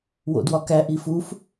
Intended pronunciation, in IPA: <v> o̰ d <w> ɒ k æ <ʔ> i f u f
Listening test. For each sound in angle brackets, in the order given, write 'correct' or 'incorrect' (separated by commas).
incorrect, correct, correct